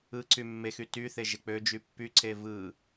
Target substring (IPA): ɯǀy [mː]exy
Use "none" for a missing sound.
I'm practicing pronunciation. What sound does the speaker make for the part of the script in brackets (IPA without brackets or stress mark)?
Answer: mː